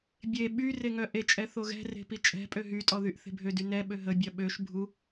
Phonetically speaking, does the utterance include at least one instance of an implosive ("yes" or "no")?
yes